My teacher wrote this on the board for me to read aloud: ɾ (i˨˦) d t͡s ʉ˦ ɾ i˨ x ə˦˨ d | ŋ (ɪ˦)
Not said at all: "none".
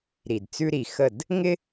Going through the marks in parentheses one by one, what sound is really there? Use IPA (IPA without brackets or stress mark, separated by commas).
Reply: i˨, ɪ˦